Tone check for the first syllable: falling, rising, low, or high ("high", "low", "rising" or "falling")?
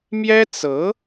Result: high